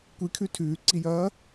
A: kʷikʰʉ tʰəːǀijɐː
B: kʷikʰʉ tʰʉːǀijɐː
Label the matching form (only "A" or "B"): B